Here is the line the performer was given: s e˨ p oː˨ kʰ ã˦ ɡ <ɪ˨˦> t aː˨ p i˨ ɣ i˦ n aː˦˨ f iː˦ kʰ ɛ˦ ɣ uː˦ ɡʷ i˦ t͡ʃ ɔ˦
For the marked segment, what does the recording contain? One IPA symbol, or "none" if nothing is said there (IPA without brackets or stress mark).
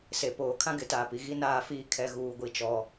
ɪ˨˦